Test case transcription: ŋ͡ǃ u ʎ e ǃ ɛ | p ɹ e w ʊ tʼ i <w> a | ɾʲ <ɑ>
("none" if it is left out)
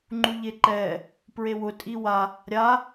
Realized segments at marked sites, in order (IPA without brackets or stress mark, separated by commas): w, a